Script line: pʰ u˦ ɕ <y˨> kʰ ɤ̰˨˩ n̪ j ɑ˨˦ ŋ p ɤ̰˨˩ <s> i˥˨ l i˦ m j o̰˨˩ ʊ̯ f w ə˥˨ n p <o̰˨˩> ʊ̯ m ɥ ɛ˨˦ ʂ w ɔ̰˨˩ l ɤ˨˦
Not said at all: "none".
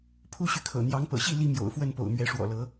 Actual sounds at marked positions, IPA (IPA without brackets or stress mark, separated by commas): y˨, ɕ, o̰˨˩